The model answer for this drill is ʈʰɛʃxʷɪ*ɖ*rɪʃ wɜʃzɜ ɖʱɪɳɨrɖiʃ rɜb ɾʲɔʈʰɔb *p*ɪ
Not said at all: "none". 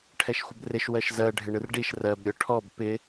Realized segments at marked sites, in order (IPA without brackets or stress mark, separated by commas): b, p